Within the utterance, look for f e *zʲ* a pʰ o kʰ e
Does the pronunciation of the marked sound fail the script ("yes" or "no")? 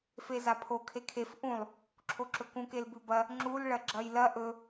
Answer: yes